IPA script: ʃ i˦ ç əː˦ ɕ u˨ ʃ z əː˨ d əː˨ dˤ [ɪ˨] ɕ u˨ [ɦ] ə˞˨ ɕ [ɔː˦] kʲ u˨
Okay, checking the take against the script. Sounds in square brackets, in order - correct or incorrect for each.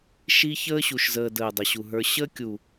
incorrect: ə˨, correct, incorrect: əː˦

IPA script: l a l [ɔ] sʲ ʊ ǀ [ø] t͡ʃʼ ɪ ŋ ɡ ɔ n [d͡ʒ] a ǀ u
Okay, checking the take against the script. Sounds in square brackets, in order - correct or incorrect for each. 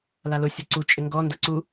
incorrect: ʊ, incorrect: u, incorrect: d

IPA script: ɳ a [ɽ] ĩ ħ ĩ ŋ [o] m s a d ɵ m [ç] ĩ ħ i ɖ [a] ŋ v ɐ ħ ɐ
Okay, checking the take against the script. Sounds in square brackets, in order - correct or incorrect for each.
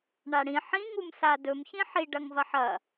correct, incorrect: u, correct, incorrect: ɐ

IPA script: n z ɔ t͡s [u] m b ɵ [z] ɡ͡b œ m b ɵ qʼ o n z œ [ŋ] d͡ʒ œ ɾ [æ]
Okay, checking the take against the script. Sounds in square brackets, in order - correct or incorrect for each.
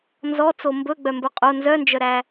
incorrect: o, incorrect: none, incorrect: n, correct

